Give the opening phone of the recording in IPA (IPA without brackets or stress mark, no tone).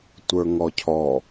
tʷ